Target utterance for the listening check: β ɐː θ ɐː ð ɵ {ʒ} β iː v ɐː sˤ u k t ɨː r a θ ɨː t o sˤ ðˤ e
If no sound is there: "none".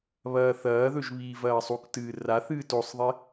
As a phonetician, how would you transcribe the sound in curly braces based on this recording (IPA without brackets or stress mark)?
ʒ